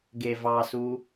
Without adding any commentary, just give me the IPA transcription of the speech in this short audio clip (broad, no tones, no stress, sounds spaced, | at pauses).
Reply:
ɡ e v ɑ s u